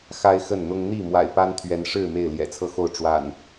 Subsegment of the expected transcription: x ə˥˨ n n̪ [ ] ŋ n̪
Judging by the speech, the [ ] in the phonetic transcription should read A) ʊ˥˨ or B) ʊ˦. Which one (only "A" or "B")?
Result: B